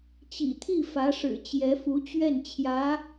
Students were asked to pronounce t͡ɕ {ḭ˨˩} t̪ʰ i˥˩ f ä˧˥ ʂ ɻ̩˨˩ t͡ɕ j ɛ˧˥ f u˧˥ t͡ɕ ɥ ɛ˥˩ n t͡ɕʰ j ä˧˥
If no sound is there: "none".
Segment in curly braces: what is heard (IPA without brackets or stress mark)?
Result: ḭ˨˩